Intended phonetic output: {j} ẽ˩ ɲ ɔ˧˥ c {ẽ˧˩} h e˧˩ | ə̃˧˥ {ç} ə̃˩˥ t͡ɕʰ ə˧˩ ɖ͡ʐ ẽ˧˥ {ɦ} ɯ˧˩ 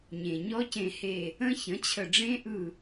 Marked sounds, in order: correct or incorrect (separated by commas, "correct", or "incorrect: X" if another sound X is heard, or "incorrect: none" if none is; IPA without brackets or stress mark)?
incorrect: ɲ, correct, correct, incorrect: ʔ